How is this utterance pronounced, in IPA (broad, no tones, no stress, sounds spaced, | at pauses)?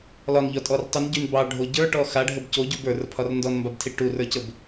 l ɒ n ʎ ɒ tʼ ɔ r tˤ u n ɟ y n b ɑ ɖʱ o ɟ ə˞ ʈ ɔ x a ɖʱ ə b c o ɟ u b ə˞ r pʰ ɒ r n d ɔ n m b a b tʰ i ʈ u r ə˞ c ə b